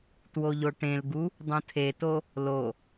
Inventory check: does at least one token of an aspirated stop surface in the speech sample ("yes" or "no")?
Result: yes